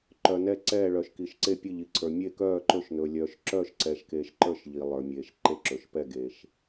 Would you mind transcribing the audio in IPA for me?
ǃ œ˩ n ɛ˧˩ ǀ ɛː˧˩ ɭ œ˩ ʃ k i˩ ʃ ǀ e˧˩ pʲ ɘ˧˩ ʎ i˩ ǀʰ ə˞˩ mʲ e˧˩ k œː˧˩ ǃ ɵ˧˩ ʃ n ɵː˩ lʲ œː˩ ʃ ǁ œː˧˩ ʃ ǀ ɛ˩ ʃ k eː˩ ʃ ǃ ə˞˧˩ ʃ ʎ i˩ lˠ ə˞˩ mʲ eː˩ ʃ ǃ e˧˩ ǁ ɵ˩ ʃ p ɛ˧˩ ɡ eː˩ ʃ

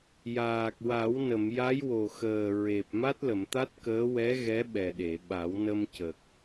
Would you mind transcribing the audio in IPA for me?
j aː˨˩ k̚ w a˨˩˦ w n ə˨˩˨ m j a˧˥ j w o˨˩ x əː˨˩ ɹ e˨˩ p̚ m a˦˥ t̚ l ə˨˩˨ m t̪ a˦˥ t̚ k əː˧˥ w ɛ˧˥ ɣ ɛ˧˥ ɓ ɛ˨˩ ɗ e˨˩˨ ɓ a˨˩˦ w n ə˧ m c ə˨˩ k̚

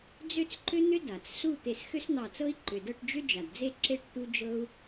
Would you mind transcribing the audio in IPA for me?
d͡z ʏ˥˨ t͡s ǃ ʏ˥ n̪ ʏ˥ d a˩ t͡s s u˥˨ t̪ e˧˩ s x ʏ˥ s n̪ ɑ˧˩ t͡s ɤ˥ i̯ ǃ ʏ˩ d ɤ˥˨ ʈ d͡ʒ ʏ˥ d͡ʒ a˩ d d͡z e˥˨ ǁ e˥˨ ʈ t̪ u˥ d͡ʒ ɤ˥ u̯

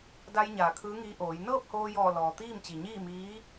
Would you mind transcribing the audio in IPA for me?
d a˧ j ɲ aː˧˩ kʰ ɯː˧˥ ŋ iː˧˥ ʔ oː˩˧ j n ɤː˥˨ p̚ h oː˧ j ɔː˧˩ l ɔː˩ t̪ iː˥˨ m t͡ɕ i˩ ɲ iː˥˨ m iː˧˥

